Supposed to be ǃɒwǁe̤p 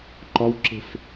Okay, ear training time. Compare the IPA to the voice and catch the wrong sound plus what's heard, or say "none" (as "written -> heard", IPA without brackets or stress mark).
p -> f